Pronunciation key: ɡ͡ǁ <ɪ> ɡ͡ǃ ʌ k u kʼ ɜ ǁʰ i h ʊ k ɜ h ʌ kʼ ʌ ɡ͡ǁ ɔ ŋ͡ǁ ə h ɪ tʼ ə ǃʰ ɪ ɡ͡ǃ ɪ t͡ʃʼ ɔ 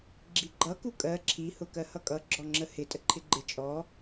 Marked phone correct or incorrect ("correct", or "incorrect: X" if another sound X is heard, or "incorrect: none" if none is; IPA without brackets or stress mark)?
incorrect: i